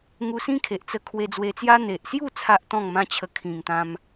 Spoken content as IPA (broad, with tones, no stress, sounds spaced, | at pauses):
ŋ u˧ s ĩ˦ kʰ e˨ ʔ t͡s ə˧ kʰ w e˧ d͡z w e˧ t͡s j a˦ n̪ e˨ ʔ s j u˥˧ t͡sʰ a˦ ʔ t̪ ɔ̃˥˧ ŋ m ã˦ t͡ɕʰ ə˧ kʰ ĩ˨˩ ŋ t̪ ã˧ m